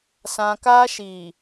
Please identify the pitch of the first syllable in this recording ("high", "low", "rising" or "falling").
high